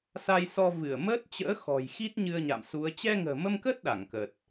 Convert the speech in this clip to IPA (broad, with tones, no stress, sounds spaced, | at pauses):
s a˧ j s ɔ˧ v ɨ˧˩ ə̯ m əː˦˥ t̚ t͡ɕ ə̰ː˧˥ x ɔ̤˨˩ j x i˦˥ t̚ ɲ ɨ˧ ə̯ ɲ a̰˧˨ m s u˨˦ ə̯ t͡ɕ ɛ˧ ŋ ə̤ː˨˩ m ə˧ m k əː˦˥ t̚ ɗ a˧˩ ŋ k ə˨˩ t̚